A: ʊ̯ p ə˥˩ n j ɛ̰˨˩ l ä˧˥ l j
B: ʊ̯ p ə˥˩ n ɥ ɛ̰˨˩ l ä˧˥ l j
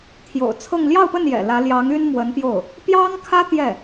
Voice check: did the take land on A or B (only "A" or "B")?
A